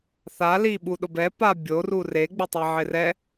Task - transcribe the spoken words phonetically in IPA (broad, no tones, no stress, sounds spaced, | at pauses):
θ a l i ɓ u ɗ ʊ b ɛ p a bʲ o r u r e ɡ͡b ɪ tˤ e ʕ ɪ r ɛ